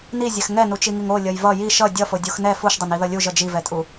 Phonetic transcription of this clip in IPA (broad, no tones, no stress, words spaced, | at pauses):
nizʲɛx ŋɛnut͡ʃiŋiŋ olʲʌj vʌ jiʃ ʌ dʲʌfodʲux nɛ fuʃdˤʌniðʌ lʲuʒʌ d͡ʒivɛtʼu